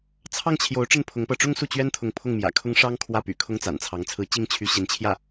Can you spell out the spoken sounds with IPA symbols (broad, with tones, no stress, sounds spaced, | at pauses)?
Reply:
t͡sʰ ɑ˥˩ ŋ t͡ɕʰ j o˧˥ ʊ̯ ʈ͡ʂ ə˥˩ n pʰ ʊ˧˥ ŋ p ɤ˧˥ ʈ͡ʂ ʊ˥ ŋ s u˥˩ t͡ɕ ɥ ɛ˥ n t̪ʰ ʊ˧˥ ŋ pʰ ʊ˥˩ ŋ m j ä̰˨˩ kʰ ʊ˥ ŋ ʂ ɑ˥ ŋ kʰ w ä˥˩ p y̰˨˩ kʰ ʊ˥ ŋ t͡s a̰˨˩ n t͡sʰ ɑ˧˥ ŋ t͡sʰ ɹ̩˧˥ t͡ɕ i˥˩ ŋ t͡ɕʰ y˧˥ ɕ i˧˥ n t͡ɕʰ j ä˥˩